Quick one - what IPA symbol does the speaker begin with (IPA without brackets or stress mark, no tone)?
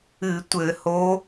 ɨ